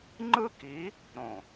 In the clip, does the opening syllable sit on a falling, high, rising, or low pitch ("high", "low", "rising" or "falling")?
high